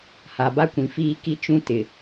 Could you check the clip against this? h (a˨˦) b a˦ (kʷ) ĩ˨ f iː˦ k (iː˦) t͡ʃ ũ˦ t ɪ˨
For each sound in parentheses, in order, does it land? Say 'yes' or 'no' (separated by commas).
no, yes, no